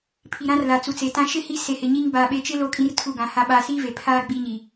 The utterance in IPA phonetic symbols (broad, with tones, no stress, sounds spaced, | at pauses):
pʰ i˨ ɾ ã˦ r l a˨ t͡s u˨ t͡s e˨ t ã˦ ʃ ɪ˦ h i˦ s e˨ h ɪ˨ ɲ i˦ ŋ b a˨ ɓ e˨˦ t͡ʃ ɪ˦ l o˦ kʼ ĩ˦ r tʰ u˦˨ ɡ ã˨˦ h a˦ ɓ a˦ s i˦ v e˨ pʰ aː˦ ɡ͡b i˦ ɲ i˨